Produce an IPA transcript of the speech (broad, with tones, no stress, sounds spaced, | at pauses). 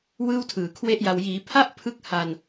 w ɯː˥˩ w tʰ ɯː˨˩ kʰ w e˥˩ ʔ j a˧ w j iː˩˦ pʰ a˥˩ ʔ pʰ ɯ˥˩ k̚ h a˧ n